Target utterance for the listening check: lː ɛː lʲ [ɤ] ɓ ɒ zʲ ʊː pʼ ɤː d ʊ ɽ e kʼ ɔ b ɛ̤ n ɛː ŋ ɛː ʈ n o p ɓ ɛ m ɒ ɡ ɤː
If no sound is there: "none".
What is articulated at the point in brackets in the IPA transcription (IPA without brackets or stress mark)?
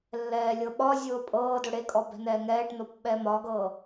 ɤ